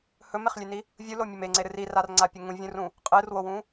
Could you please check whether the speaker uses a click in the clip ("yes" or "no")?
yes